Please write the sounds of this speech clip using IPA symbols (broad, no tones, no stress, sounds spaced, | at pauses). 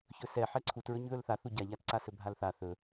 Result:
ç ɵ s ɛ ħ ɛ ǀʰ u t ɹ ɵ ɲ ð ɵ l θ a θ u ɟ a ʎ a t ǀ a s ɵ bʱ a l θ a θ ɵ